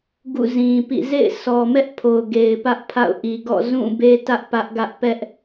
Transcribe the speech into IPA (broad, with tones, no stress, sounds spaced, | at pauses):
ɡ ṵ˦˨ z ĩ˨ p ḭ˦˨ z ḛ˦˨ ɪ̯ s ɔ˨ m ɛ˦ ʔ pʰ o˨ ʊ̯ ɡ e˨ ɪ̯ p ä˦ ʔ pʰ a̰˦˨ ʊ̯ ʔ i˨ ɡ ɔ̰˦˨ z ũ˦˨ b e˦ t ä˦ ʔ p ä˦ ʔ ɡ ä˦ ʔ p ɛ˦ ʔ